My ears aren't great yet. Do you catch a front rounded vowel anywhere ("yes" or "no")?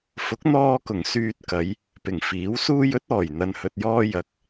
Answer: yes